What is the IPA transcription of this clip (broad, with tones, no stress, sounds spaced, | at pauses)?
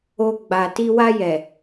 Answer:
o˧ ɡ͡b a˨ t i˧ w a˧ j ɛ˨